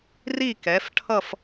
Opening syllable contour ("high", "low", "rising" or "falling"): falling